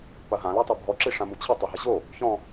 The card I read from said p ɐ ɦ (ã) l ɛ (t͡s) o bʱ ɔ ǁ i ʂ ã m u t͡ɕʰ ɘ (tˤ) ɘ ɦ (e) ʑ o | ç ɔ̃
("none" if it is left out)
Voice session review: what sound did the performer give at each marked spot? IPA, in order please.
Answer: ã, tˤ, tˤ, ɘ

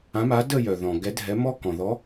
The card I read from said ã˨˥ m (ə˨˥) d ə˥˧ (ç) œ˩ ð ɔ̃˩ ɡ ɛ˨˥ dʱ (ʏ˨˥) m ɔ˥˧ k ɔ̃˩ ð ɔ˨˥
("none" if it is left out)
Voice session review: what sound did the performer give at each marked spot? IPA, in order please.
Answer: a˨˥, j, ɛ˨˥

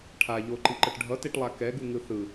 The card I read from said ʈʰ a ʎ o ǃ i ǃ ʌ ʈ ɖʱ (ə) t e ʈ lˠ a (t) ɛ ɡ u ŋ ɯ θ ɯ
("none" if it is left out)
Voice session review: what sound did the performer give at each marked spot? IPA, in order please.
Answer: ʌ, k

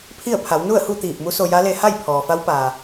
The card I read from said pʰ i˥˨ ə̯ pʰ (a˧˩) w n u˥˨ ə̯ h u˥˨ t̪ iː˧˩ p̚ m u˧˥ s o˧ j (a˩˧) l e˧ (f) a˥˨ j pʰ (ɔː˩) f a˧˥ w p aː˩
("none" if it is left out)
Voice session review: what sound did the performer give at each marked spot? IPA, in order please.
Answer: a˩˧, a˧˥, h, ɔː˩

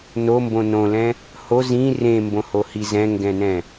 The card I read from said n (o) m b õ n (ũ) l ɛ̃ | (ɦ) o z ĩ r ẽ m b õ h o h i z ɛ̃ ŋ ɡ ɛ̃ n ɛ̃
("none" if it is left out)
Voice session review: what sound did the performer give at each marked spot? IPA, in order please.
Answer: o, õ, h

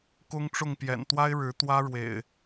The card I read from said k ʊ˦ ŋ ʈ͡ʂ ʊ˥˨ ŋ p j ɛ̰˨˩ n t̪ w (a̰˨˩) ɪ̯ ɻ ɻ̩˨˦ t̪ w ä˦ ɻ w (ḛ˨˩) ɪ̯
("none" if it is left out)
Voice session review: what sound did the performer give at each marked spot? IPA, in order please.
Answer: a˦, ḛ˨˩

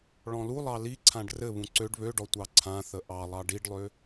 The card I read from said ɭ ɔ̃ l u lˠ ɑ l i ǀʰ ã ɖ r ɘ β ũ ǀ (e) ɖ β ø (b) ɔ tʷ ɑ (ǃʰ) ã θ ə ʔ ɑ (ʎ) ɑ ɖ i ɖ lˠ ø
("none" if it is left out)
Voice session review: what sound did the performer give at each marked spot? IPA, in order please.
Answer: ø, ɖ, ǀʰ, lˠ

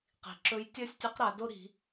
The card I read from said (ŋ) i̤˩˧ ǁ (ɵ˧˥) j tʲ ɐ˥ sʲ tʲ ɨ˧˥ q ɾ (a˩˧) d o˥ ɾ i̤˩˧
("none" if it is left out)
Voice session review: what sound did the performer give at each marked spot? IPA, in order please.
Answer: q, ɵ˧˥, a˩˧

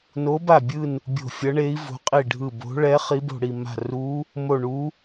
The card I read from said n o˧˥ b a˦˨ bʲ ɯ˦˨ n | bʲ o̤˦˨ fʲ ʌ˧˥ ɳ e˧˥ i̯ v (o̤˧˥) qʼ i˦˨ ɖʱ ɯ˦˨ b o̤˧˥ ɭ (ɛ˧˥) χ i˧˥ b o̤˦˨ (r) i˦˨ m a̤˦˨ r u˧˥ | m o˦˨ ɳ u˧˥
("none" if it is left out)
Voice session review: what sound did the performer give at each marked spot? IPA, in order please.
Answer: o̤˧˥, ɛ˧˥, ɽ

